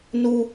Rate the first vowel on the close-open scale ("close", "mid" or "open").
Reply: close